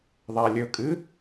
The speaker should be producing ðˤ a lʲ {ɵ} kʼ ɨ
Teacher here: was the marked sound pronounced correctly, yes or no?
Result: yes